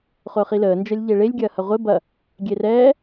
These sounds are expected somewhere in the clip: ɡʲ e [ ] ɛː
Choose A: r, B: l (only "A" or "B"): A